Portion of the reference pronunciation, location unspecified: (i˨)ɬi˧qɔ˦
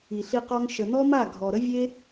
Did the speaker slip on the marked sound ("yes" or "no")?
no